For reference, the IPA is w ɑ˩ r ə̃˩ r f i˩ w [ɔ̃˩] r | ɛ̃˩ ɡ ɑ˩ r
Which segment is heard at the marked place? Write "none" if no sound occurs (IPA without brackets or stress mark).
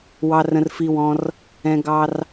ɔ̃˩